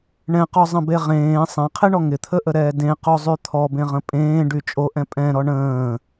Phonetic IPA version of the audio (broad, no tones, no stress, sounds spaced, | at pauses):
ɳ ɛ̃ q ɔ zˤ ə̃ b e ʁ ẽː sˤ ɛ̃ qʰ e ɳ ɔ ŋ ɪ t̪ʰ ə ʔ ə ɾ ɛː d ẽ q o zˤ y t̪ʰ ɔ b ẽ ʁ ə̃ pʼ ẽː ɖ y t͡ʃʼ o ʔ ɛ̃ pʼ ɛ̃ ɾ ɔ ɳ ə̃ː